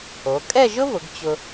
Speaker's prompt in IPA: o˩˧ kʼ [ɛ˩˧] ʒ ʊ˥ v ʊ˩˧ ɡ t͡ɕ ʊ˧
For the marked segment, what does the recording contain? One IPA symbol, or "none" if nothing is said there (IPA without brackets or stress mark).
ɛ˥˧